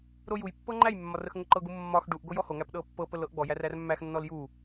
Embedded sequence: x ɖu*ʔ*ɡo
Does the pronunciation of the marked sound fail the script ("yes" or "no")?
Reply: no